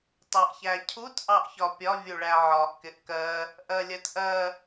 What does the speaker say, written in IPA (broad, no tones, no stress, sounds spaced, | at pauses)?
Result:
tˤ ɜ ʔ ç æ cʰ u t ʔ ɑ ʔ ç ɒ pʲ ɒ vʲ u ɭ æ ʕ ɒ ʔ k ɪ ʔ k ɜ | ʔ ɜ lʲ ɜ t ʔ ɜ